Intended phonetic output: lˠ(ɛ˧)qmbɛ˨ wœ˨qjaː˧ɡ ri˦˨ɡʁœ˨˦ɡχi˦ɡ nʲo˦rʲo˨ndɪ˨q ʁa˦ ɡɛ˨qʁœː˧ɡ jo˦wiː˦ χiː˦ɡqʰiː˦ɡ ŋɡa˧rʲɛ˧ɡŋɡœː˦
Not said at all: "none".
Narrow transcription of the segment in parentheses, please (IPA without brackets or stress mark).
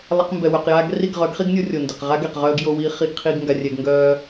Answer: ɛ˧